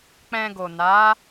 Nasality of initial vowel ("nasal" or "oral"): nasal